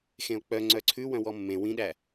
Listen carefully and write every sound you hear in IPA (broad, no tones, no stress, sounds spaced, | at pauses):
x ẽ o̯ k͡p œ ŋ͡ǀ œ ǀʰ ʉ w œ̃ w ɔ mː ẽ w ĩ ɗ æ